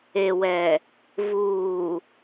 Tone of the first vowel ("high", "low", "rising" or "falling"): low